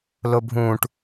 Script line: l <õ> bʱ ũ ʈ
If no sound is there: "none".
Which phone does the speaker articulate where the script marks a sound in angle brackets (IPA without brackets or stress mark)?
o